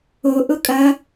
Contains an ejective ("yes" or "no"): yes